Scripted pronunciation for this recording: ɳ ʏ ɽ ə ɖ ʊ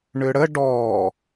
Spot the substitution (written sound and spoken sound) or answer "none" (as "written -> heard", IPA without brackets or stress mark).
ʊ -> ɔ